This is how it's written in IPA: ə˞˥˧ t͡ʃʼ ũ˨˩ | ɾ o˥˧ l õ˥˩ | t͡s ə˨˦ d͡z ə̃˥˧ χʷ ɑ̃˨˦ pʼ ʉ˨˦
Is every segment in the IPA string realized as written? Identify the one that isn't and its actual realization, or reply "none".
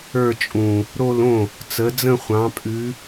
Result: none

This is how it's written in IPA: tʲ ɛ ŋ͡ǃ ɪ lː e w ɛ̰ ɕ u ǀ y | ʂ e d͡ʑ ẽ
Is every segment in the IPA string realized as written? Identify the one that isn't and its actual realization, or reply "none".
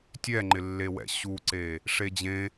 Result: y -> e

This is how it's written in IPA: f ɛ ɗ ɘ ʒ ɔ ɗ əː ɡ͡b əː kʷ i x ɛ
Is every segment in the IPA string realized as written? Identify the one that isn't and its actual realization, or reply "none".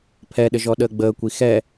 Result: f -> pʰ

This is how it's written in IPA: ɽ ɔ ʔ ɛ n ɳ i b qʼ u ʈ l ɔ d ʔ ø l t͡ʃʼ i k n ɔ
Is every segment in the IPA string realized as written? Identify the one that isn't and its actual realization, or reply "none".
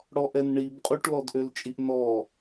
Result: k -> ʔ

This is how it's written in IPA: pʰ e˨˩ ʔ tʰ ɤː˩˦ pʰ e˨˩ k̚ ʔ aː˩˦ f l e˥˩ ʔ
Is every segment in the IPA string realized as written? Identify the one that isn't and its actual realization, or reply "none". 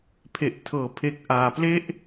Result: f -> p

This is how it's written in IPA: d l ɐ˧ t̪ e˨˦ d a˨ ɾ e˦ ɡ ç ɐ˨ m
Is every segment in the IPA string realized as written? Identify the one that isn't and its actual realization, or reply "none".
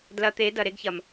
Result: a˨ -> ɐ˨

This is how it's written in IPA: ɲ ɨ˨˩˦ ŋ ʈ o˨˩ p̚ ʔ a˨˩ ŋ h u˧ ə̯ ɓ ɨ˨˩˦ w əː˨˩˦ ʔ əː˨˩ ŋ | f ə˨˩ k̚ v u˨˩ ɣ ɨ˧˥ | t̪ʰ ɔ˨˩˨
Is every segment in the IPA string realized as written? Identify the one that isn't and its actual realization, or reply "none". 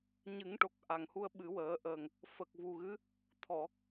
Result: p̚ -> k̚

